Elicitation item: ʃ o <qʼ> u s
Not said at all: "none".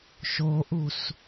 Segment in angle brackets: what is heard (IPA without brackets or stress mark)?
ʔ